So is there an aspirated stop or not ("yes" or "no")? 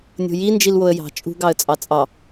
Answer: no